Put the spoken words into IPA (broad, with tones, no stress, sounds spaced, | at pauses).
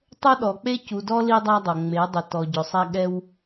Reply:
tˤ o˦ ɗ ɔ˨ k͡p e˦ c u˨ d ɔ˦ l i˦ dˤ a˦ dˤ o˨ ŋ͡m e˨˦ dˤ ɪ˨ t ɔ˨ ɟ ʊ˨ sˤ ɛ˦ ɠ ɛ˦ w